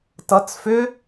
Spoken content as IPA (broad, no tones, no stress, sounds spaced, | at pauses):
t ʌ t͡s f ʏ